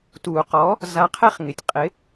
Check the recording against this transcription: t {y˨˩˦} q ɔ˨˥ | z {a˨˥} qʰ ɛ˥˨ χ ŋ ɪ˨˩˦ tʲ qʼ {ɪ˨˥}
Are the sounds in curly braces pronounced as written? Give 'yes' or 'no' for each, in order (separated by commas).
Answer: no, yes, yes